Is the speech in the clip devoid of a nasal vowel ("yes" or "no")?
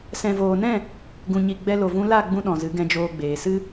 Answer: no